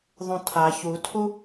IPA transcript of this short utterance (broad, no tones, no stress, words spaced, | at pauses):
ðˤũtʰa çutʰu